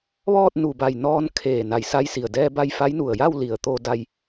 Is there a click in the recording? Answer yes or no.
no